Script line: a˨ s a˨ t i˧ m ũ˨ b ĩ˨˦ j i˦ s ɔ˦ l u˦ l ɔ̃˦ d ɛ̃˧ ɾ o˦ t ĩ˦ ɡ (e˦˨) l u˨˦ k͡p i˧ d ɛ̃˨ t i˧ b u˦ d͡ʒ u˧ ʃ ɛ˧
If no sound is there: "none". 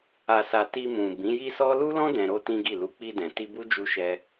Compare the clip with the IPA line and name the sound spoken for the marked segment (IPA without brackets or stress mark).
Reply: i˦˨